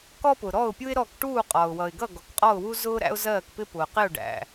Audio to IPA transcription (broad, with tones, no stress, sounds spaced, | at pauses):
k ɔ˥ p ʊ˩ ɾ ɔ˥˩ ʊ̯ pʲ u˥ ɪ̯ ɾ ɔ˥˩ k ʈ uː˥˩ qʼ ɒ˩ ʊ̯ w ʌ˩ ɪ̯ ɡ ʌ˥˩ ɡ ɔ˩ k qʼ ɔ˥˩ ʊ̯ w u˥ z ʊː˥ ɾ æ̰˥ ʊ̯ z ɜː˥˩ k p ɪ˥ p ʊ˩ q ɪ˥˩ ʊ̯ ɖ æ̰˩